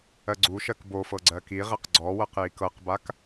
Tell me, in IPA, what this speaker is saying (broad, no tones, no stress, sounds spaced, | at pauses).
ɜ ɡ͡ǀ u ʃ ɜ k b o f ɤ ɡ͡ǀ ɜ k i ʁ ɛ q ɡ͡ǀ ɔ w ɤ q j i k ɤ q b a k